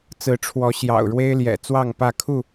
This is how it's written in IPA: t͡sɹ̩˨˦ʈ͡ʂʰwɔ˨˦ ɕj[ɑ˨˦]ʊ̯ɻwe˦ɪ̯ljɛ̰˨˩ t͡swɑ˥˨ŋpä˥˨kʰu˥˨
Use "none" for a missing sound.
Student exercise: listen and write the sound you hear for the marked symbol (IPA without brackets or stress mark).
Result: ɑ̰˨˩